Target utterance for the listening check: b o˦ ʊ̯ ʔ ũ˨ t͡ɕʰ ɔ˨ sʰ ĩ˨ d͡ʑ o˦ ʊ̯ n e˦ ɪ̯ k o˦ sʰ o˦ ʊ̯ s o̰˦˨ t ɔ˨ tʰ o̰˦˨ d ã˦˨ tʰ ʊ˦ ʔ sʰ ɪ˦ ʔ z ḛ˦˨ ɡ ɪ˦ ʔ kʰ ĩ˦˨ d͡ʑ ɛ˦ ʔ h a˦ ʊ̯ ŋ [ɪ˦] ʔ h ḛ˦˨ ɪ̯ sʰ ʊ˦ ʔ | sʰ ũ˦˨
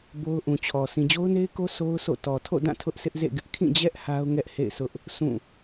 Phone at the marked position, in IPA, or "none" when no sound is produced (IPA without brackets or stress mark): ɛ˦